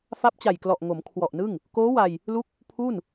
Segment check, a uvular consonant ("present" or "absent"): absent